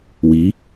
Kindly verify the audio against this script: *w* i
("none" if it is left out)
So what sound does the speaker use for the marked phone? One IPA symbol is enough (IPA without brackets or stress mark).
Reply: w